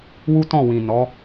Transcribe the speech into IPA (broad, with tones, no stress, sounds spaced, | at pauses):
w u˦ t ɔ̃˦˨ w ĩ˨ n ɔ˨˦